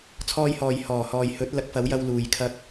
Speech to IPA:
t͡sʰ ɔː˧ j h ɔː˨ j h ɔː˨˩ h ɔː˨ j h ɵ˨˥ t̚ l ɐ˨˥ k̚ f ɐ˨˥ w j ɐ˧ w l uː˨ j kʰ ɐ˧ k̚

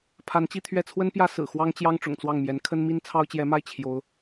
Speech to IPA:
pʰ a˧˥ n t͡ɕ i˥˧ t̪ʰ ɥ ɛ˥˩ t͡sʰ w ə˥ n p j ä˥ s ɹ̩˨˩ x w ɑ˥ ŋ t͡ɕ j ɑ˥ ŋ ʈ͡ʂ ʊ̰˨˩ ŋ t͡s w ɑ˥˩ ŋ m j ɛ˧˥ n kʰ ə˥ n m i˥ n t͡sʰ ɑ˥ ʊ̯ t͡ɕ j ɛ˧˥ m a˥˩ ɪ̯ t͡ɕʰ j o˧˥ ʊ̯

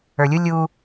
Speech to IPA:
ə˞ lʲ u lʲ u

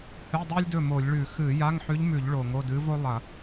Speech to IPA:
h ɨ˧˥˧ dˤ ʉ˥ lʲ d ɵ˥˩ m o˧˩˧ lʲ ɭ ʉ˧˩˧ x ɨ˧˩˧ j a˧˥˧ ŋ ħ ʉ˧˥ ʎ m ʉ˧˩˧ ʎ ɭ o˧˩˧ ŋ o˧˥˧ d ɨ˧˥ v o˥ lˠ ɐ˧˩˧

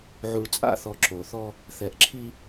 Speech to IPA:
ʕ u˨ ɭ t͡sʼ a̰˦˨ θ ɔ˨ ǁ o˨ θ ɔ˦ | θ ɛ˨ ʔ ǁʰ i˦

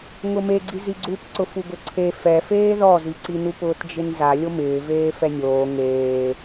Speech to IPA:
ŋ ʊ m e ɡ͡ǀ i z i ɡ͡ǀ u p ǀ ʊ f u ɡ ʊ ǀʰ e f ɛ f eː ð ɔ z i ǀ i n u p ʊː t d͡ʒ ɪ n z a lʲ o m ɪː v eː f ɛ nʲ oː ŋ eː

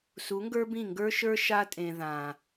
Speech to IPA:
s u˨˦ ŋ ɡ ə˞˦ b ĩ˦˨ ŋ ɡ ə˞˦ ʃ ə˞˦ ʃ a˦ tʼ ẽ˨ ð ã˨

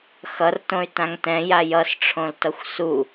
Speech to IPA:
x ʌ r t õ y̯ t ã ŋ t ɛ̃ j a j ʌ s ʈ͡ʂʰ õ l t ʌ xʷ s u

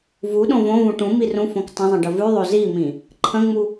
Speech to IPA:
v u ɗ õ v õ v ũ ʈ ũ m i r ũ f õ k tˤ ə̃ zˤ ə̃ ɖ ə v ʉ ðˤ o z i m ĩ | ǃʰ ə̃ ŋ͡m u

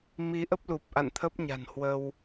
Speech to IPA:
m i˨˦ ʔ ə˦˥ p̚ l u˨˩ p̚ ʔ a̰˧˨ n t̪ʰ ə˦˥ p̚ ɲ a̤˨˩ n h w ə˧ w

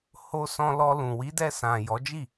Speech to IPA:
h o˧ s ɔ̃˧ l ɔ˧ l ũ˨ w i˨˦ d ɛ˧ s ã˨ j ɔ˨˦ d͡ʒ i˦˨

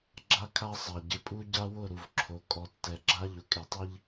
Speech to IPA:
ɡ͡ǁ a˦ kʰ a˦ sˤ a˨ ɟ ɪ˨ pʼ u˦ ɟ a˦ w ʊ˦˨ ɾ u˨ v ǁʰ o˨ kʼ ɔ˨ tː ɛ˨ ɡ͡ǁ a˦ ʎ ʊ˨ kʼ e˨ tˤ i˦ ʎ

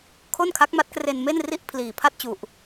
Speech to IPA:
kʰ o˥˩ n kʰ a˦˥ k̚ m a˦˥ t̚ k r e˧ n m e˥˩ n r i˥˩ ʔ pʰ l iː˨˩ pʰ a˥˩ t̚ t͡ɕ u˨˩ ʔ

